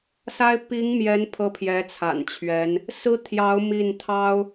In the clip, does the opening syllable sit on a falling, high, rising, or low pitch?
high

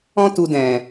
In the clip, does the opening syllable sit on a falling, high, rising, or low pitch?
high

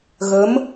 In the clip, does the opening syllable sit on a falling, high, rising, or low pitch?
rising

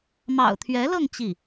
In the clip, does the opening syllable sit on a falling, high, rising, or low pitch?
low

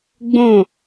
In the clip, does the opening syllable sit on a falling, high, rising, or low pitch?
falling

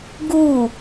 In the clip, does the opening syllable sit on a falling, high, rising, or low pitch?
falling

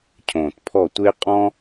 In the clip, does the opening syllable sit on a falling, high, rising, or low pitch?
low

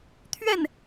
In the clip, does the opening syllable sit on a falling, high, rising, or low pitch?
falling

